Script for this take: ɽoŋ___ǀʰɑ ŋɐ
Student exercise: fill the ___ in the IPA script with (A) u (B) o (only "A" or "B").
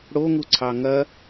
A